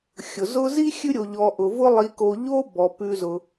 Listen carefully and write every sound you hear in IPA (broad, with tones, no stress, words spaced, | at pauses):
xʲʊ˩zʊ˦ zi˥xʲʉ˦ɾʲo˨ʎɔ˨ ʔʊ˨vʊ˦ lˠi˨ko˨ ʎo˥ bɔ˩pʉ˨zʊ˩